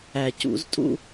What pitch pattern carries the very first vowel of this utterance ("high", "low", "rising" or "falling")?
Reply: low